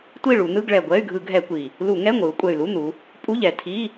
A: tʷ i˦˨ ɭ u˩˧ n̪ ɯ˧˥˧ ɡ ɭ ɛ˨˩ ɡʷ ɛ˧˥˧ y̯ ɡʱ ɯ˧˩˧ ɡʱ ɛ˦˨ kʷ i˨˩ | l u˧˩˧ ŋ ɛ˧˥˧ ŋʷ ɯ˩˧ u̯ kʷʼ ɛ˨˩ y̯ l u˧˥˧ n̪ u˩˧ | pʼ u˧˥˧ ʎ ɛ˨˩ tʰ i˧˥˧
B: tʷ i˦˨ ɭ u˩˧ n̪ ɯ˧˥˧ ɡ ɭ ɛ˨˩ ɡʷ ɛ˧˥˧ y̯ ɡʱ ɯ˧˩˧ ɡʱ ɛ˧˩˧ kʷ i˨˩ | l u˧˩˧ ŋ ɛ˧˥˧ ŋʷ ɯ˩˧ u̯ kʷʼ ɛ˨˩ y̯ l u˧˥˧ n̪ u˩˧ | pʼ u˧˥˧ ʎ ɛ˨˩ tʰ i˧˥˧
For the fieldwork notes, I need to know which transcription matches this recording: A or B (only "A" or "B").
B